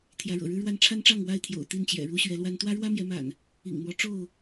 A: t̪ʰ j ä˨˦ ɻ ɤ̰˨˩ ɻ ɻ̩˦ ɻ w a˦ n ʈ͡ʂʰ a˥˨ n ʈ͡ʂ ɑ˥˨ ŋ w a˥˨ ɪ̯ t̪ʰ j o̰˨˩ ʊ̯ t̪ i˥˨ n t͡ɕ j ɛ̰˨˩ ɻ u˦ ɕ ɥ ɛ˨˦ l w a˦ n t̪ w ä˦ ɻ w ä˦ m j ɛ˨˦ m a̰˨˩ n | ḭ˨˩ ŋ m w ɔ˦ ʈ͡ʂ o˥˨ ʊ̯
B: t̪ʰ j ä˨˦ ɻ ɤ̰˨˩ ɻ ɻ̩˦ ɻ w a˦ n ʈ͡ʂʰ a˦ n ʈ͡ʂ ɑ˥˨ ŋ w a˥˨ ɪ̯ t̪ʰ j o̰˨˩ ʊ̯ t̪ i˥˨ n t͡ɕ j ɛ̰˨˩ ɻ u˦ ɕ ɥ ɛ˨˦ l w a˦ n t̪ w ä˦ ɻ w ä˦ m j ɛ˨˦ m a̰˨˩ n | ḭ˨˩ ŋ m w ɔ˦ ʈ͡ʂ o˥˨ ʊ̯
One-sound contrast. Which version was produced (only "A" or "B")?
B